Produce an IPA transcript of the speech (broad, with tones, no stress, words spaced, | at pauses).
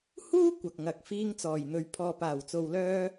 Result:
huː˥ kʷɐ˨k̚ŋɐ˨k̚ fiː˧ŋt͡sɔː˨˩jn̪ɵ˨ɥ pʰɔː˨paː˨˩wt͡so˨wlœː˧